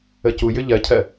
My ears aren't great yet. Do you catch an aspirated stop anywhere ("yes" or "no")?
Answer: yes